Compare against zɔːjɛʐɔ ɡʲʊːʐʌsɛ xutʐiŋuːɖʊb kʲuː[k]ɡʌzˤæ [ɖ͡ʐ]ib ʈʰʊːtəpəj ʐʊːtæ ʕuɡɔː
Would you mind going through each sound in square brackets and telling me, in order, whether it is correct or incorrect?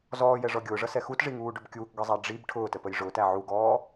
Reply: correct, correct

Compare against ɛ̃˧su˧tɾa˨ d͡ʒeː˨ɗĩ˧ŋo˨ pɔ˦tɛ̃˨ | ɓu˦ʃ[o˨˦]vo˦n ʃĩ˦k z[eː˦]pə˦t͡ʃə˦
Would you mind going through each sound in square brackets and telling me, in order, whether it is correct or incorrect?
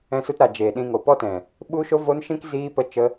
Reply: incorrect: o˦, incorrect: iː˦

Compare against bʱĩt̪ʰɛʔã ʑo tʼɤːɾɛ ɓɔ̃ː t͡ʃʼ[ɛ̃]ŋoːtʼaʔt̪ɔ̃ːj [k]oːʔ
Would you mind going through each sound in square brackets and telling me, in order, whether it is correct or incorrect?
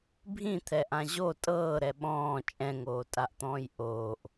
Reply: correct, incorrect: ʔ

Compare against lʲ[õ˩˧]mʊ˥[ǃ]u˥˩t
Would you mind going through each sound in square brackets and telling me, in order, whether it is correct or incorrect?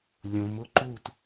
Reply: correct, correct

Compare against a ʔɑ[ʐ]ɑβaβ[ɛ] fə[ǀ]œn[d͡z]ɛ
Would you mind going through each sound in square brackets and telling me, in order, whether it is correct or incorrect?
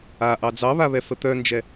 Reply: incorrect: d͡z, correct, incorrect: t̪, incorrect: d͡ʒ

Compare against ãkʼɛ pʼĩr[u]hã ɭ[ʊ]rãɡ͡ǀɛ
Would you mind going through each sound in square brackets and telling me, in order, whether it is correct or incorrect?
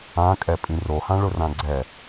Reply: incorrect: o, correct

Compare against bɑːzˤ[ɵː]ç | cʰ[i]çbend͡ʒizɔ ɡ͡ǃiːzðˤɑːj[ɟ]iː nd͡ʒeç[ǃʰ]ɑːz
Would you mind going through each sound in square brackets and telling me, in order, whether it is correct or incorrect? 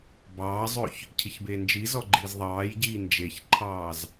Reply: correct, correct, correct, correct

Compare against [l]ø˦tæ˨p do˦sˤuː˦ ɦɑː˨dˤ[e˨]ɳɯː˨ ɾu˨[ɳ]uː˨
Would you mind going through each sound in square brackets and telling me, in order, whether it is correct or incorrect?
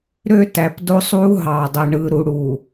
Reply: incorrect: ɾ, correct, incorrect: ɽ

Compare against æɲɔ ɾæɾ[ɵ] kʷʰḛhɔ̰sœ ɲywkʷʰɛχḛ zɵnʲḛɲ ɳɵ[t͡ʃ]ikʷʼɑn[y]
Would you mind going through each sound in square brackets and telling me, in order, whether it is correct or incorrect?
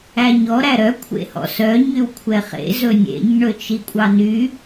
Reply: incorrect: œ, correct, correct

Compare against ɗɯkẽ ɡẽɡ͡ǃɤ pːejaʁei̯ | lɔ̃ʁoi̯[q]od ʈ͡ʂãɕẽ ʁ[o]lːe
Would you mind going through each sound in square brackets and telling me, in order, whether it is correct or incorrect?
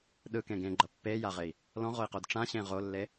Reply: correct, correct

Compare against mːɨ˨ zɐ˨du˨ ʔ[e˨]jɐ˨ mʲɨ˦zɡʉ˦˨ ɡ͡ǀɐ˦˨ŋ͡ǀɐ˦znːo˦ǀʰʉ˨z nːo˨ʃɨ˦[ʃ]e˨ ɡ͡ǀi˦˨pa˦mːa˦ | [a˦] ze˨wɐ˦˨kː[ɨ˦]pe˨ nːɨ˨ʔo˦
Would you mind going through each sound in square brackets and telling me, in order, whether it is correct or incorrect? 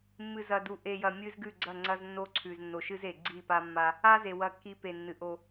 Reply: correct, incorrect: z, correct, incorrect: i˦

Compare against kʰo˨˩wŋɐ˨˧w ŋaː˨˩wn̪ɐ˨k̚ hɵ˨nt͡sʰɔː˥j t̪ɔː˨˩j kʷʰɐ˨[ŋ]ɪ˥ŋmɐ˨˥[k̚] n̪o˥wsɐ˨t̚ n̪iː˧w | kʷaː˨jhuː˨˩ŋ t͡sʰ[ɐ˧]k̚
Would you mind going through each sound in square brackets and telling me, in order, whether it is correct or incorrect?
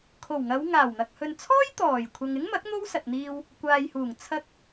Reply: correct, correct, correct

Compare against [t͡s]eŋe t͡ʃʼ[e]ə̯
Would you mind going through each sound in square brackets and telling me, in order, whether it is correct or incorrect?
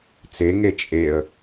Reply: correct, correct

